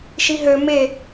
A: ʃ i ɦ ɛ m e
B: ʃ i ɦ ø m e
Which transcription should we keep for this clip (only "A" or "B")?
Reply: B